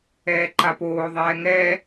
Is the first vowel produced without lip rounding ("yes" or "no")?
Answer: yes